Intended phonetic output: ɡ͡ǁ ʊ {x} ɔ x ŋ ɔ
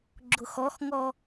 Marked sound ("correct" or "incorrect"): correct